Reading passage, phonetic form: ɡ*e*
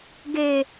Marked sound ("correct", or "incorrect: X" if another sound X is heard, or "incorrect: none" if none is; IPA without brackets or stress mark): correct